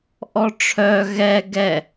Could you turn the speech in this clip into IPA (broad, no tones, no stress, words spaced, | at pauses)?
ʔɔʈ͡ʂʰœ ɣɛ ɡɛ